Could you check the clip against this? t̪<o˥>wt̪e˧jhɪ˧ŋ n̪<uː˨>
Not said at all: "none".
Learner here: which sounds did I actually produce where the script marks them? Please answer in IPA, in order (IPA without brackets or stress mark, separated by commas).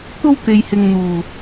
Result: o˥, uː˨